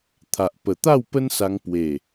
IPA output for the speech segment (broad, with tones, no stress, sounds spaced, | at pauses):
t̪ʰ a˨ ʔ p ə˨˩ t̪ a˥˧ w p ə˦ n s a˧ ŋ p w e˨˩